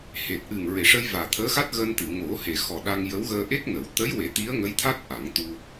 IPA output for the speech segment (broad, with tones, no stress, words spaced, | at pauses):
he˨˩t̚ʔɨ˨˩ŋ ɹe˨˩˨ʂə˧j vaː˨˩t̪ʰəː˧˥xa˦˥t̚ ɣəː˧nt̪ɨ˨˩˨ ŋo˨˩˦he˨˩ xɔ˨˩ɗa˧ŋ jə˧˥wɣəː˧ ʔe˦˥k̚nə˨˩˦w t̪ə˧˥jwe˨˩˦ t̪i˧˥ə̯ ŋə˧˥jt̪ʰa˦˥t̚ ʔa˨˩˦ŋt̪u˧